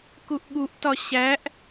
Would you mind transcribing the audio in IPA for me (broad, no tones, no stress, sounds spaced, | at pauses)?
k u ʔ ɠ u ʔ t ɒ ɕ æ ʔ